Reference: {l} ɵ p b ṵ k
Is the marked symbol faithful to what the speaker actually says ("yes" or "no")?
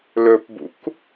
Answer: yes